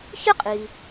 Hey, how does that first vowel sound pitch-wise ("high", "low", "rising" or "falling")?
high